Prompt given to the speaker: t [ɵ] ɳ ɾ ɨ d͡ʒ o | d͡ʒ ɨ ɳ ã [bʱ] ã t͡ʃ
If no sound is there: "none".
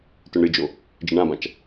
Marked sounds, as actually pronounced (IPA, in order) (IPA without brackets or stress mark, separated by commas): ɵ, b